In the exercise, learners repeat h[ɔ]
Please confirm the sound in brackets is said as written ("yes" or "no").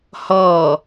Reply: yes